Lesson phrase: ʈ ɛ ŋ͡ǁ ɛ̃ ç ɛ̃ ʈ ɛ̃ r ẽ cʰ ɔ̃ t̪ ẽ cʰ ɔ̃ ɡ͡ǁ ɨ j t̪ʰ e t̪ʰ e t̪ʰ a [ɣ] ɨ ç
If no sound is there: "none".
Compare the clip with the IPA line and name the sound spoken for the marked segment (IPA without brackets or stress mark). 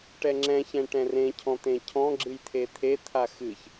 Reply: x